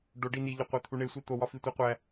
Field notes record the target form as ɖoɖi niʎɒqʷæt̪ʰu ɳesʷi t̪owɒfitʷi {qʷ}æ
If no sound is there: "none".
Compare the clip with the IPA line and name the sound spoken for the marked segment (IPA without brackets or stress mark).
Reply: qʷ